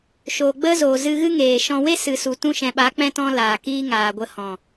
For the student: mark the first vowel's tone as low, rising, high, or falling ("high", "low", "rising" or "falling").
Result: low